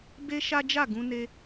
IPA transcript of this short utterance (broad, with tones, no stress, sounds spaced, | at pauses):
b e˦ ʃ a˦ d͡ʒ a˦˨ ɡ ũ˧ n e˧